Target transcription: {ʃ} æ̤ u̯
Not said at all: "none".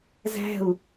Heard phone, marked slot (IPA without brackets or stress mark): z